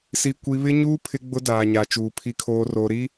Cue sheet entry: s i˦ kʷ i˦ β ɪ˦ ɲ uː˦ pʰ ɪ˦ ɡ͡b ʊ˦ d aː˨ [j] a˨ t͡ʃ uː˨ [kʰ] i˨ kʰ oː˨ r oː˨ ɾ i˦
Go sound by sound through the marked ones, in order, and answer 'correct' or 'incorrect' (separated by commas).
incorrect, incorrect